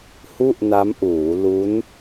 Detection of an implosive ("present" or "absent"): absent